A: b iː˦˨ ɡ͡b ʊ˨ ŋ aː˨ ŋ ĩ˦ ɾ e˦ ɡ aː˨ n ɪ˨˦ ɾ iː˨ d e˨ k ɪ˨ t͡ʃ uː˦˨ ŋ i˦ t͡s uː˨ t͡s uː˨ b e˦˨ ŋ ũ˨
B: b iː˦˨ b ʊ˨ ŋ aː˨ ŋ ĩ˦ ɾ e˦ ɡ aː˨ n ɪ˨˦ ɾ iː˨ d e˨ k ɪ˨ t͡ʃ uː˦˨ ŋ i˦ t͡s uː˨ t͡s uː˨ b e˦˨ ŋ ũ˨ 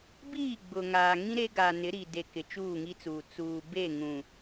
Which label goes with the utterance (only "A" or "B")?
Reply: A